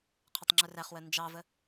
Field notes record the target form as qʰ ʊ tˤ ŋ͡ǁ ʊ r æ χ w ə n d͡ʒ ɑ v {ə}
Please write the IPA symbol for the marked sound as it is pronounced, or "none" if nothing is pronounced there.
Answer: ə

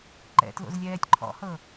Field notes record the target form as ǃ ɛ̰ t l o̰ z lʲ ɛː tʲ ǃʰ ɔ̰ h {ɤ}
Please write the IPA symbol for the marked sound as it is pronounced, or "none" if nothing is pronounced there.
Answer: ɤ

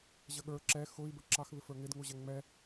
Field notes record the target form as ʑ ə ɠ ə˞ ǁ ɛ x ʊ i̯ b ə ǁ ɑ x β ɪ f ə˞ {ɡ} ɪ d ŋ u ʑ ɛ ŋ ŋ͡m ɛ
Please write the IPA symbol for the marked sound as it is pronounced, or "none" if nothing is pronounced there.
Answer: ŋ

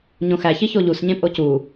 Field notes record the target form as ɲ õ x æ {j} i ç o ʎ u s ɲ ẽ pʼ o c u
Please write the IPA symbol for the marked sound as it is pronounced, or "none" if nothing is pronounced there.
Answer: ç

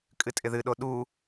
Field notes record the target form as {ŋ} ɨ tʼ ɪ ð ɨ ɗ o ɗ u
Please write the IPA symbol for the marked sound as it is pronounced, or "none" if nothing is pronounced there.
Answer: kʼ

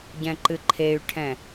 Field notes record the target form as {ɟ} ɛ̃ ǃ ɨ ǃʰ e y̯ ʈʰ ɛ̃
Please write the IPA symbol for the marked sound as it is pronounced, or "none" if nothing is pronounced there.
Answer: ɟ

